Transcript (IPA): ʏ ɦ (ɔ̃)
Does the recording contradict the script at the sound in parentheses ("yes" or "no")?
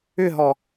yes